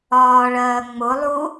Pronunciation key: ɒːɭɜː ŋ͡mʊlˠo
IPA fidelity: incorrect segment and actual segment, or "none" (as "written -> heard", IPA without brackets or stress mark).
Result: o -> u